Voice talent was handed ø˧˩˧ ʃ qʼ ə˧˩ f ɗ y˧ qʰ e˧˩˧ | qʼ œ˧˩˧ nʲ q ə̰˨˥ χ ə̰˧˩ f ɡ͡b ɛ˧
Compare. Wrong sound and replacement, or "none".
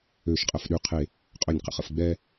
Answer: none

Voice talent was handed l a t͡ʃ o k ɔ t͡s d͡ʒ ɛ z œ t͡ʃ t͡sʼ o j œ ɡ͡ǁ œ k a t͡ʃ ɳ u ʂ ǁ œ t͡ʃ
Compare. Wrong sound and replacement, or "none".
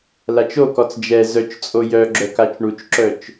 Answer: ʂ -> t͡ʃ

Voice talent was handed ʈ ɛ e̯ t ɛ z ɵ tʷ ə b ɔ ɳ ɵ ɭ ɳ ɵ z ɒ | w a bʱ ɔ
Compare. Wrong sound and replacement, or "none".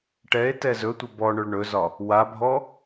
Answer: none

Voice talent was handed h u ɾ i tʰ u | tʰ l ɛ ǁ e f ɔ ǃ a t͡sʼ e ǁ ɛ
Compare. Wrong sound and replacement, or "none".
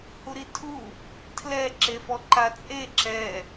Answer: none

